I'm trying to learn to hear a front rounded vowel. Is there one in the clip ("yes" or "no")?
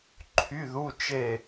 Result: yes